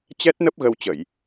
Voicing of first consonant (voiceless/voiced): voiceless